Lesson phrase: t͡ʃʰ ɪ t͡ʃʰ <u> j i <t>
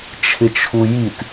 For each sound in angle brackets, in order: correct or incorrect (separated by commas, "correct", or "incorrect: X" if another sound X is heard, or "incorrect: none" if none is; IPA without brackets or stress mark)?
correct, correct